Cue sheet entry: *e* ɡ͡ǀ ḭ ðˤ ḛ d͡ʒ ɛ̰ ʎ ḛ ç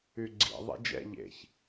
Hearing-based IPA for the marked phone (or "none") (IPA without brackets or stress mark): y